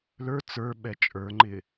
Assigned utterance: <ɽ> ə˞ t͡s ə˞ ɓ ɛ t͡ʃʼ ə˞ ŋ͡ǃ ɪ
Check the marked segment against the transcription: incorrect: l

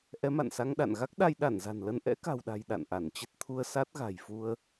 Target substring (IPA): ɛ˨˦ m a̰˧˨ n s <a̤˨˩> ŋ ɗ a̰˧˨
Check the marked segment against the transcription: incorrect: a˧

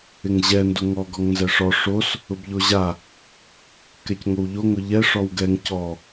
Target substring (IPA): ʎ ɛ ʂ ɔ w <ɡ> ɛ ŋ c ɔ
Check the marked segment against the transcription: correct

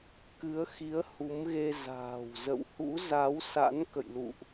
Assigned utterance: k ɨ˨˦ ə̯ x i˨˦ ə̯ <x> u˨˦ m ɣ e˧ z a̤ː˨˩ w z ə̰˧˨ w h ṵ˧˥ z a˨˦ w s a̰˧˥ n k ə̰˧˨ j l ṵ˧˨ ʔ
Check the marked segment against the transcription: incorrect: h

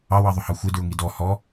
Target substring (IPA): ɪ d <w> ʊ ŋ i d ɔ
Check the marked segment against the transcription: incorrect: ɹ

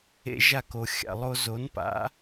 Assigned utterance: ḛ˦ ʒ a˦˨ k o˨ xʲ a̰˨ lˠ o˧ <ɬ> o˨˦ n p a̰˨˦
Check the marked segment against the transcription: incorrect: z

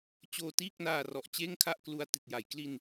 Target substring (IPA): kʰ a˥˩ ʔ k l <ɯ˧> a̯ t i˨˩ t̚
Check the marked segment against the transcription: incorrect: u˧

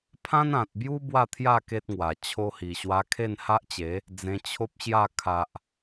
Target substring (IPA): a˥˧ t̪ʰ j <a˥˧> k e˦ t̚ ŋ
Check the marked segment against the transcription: correct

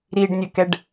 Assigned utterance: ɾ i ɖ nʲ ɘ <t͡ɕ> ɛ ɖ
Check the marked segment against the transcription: incorrect: k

